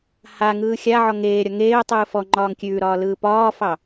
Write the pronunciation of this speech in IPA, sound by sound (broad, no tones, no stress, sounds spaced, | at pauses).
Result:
h a ŋ ɯː xʲ a ʕ ɔ ŋ eː ɾʲ ɒ ŋ eː ʊ̯ tˤ ɯː f ɔ ŋ͡ǃ ɒː ŋ kʲ ʉː ɾ ɒː l ɯː p ɒː f ɑ